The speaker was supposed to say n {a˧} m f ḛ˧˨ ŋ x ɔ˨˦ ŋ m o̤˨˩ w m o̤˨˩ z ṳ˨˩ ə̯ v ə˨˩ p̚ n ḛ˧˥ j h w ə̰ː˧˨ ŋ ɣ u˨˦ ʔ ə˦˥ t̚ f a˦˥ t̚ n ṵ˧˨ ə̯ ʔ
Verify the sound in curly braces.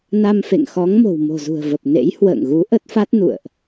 correct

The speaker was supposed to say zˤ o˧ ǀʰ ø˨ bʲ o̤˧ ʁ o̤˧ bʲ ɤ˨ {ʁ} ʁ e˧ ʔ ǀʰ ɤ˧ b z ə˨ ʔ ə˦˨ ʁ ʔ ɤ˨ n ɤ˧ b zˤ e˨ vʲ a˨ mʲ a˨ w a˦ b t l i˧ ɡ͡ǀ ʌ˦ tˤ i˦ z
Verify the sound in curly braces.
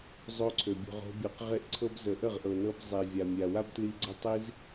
incorrect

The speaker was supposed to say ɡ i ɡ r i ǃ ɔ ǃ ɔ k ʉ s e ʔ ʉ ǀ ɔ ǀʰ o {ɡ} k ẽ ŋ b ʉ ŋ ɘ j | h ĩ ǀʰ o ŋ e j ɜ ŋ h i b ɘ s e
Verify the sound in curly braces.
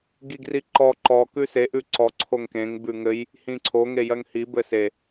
incorrect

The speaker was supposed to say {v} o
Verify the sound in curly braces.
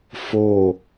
incorrect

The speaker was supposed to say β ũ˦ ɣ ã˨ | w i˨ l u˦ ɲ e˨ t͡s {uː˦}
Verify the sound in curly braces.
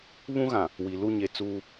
correct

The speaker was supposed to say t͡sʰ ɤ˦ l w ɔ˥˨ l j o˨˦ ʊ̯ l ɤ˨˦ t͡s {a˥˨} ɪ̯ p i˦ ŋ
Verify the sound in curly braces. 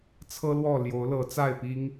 correct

